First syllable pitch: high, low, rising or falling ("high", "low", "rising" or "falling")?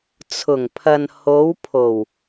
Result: low